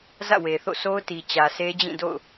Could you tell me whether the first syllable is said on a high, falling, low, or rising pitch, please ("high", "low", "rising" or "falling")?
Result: falling